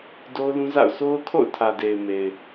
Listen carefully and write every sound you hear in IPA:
d o˦ ʊ̯ l ũ˦ z a̰˦˨ ʊ̯ s o˦ ʊ̯ kʰ o̰˦˨ ʊ̯ tʰ ä˨ d e˨ ɪ̯ m e˨ ɪ̯

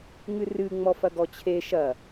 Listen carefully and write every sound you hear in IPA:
ŋ ɨ r ɨ ŋ͡m ɔ f ɐ ɡ ɔ t͡ɕʰ e ʃ ɐ

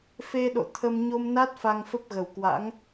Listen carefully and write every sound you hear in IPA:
f e˧ ɗ o̰˧˨ t̪ʰ ə˧ m ɲ o˧ m n a˦˥ t̚ f a˧ ŋ f ə˦˥ p̚ ɣ ə˨˩ w k w a̰˧˥ ŋ

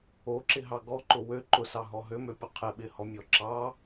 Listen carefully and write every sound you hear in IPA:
o ǁ ɪ ɦ ɑ ɡ ɔ ǃ ʊ w ø ǃ ʊ s ɑ ɦ ɔ ɦ ø m ø pʲ ʊ qʰ ɪ ɓ ɪ h ɔ mʲ ɔ ǁ ɑ

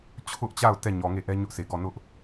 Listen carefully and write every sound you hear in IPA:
t͡ɕʰ ʊ˦ ʔ t͡ɕ a˦˨ ʊ̯ t ɛ˦˨ ɲ ɔ˨ ŋ e˦˨ ʔ ɛ˦ ɲ ʊ˦ ʔ s e˨ ɡ ɔ˦˨ n ʊ˦ ʔ

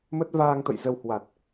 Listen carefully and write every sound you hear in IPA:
m ə˦˥ t̚ v aː˧ ŋ t̪ ə̰˧˨ j z ə˧ w h w a˨˩ t̚

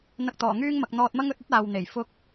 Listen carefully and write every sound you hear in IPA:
n̪ ɐ˧ k̚ t̪ ɔː˨˩ ŋ yː˥ ŋ m ɐ˨ k̚ n̪ ɔː˧ t̚ m ɐ˥ ŋ ɵ˨˥ t̚ ɵ˥ t̚ aː˨ w n̪ e˨˩ j f ʊ˥ k̚

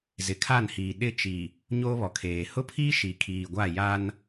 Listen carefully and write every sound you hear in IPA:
z ɪ˨ kʰ a˦˨ n h iː˨ ɗ ɪ˦˨ t͡ʃ i˨ | ɲ oː˦ β ɔ˨ kʰ eː˨ h ʊ˦ pʰ iː˦ ʃ i˨ kʰ iː˨ ɡʷ a˦˨ j a˦ n

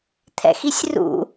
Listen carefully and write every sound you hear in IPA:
t̪ʰ ɛ̰ x i sʲ r ṵ

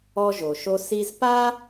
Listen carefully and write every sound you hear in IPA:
ɔ˧ ʒ o˩ ʃ o˧ s i˧ z p a˥

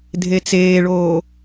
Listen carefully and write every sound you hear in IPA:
dʱ e t͡s eː ɭ oː

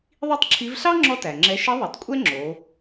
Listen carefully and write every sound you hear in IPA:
ðˤ i˥ tˤ ǁʰ i˧˥ v ɬ ɑ˥ ŋ͡ǁ ɔ˥ t æ˩ ŋ͡ǁ ɛ˧˥ ʃ i˧˥ ðˤ o˩ tˤ kʷʼ ɛ˥ ŋ͡ǁ o˩˧

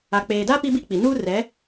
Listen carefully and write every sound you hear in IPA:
a˨ k͡p eː˨ d a˦ p i˦ b i˦ k͡p i˨ n uː˦ r ɛ˨˦

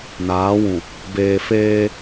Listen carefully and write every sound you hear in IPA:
n aː˨˦ w ũ˨ | b eː˨ f eː˦

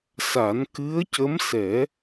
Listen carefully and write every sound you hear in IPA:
s a˨˩˦ n k ɨ˧˥ ə̯ c ə˧˥ m s ɛ˨˩˦

